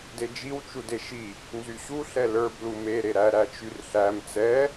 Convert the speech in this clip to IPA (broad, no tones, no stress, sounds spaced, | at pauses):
d e d͡ʒ i w t͡ʃ u d e ʃ i | n z y ɕ u ɬ ɛ l ə˞ b l u m e ɾ e ɾ æ ɾ æ t͡ʃ y r ɬ æ m t͡s ɛ